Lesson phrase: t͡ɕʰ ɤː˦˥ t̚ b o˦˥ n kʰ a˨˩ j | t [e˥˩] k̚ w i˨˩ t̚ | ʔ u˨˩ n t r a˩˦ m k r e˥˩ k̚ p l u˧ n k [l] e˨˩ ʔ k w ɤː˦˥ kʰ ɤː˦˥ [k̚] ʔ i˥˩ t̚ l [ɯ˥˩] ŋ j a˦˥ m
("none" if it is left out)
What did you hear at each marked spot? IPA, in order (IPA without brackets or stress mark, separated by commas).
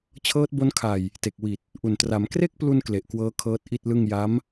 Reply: e˨˩, l, t̚, ɯ˥˩